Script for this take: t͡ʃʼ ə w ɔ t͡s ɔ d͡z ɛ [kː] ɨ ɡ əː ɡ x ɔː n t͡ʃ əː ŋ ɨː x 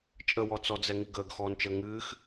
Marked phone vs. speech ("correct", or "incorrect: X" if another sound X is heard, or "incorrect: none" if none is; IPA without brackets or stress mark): incorrect: ŋ